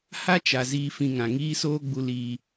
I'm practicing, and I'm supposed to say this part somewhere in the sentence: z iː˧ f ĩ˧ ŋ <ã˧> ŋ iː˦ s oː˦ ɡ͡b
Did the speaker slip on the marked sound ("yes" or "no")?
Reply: yes